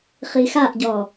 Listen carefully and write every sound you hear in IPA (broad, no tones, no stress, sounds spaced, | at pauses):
χ i x a ʔ ɟ ɔ